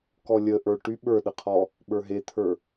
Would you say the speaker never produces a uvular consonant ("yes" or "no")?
no